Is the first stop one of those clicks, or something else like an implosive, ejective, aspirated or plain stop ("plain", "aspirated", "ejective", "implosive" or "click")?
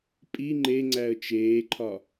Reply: ejective